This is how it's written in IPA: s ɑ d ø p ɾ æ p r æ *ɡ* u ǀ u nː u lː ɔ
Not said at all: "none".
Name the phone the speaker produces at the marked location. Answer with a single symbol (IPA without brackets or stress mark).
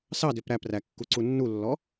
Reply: kː